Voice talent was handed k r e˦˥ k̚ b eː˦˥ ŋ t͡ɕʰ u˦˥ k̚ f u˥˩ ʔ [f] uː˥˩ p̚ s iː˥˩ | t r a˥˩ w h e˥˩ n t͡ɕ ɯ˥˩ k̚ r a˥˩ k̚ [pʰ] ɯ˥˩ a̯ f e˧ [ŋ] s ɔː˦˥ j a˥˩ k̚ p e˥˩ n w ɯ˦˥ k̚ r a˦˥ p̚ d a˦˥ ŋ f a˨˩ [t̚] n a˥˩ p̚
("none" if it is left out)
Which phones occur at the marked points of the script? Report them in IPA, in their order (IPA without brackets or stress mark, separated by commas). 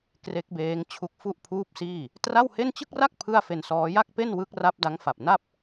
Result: pʰ, pʰ, n, p̚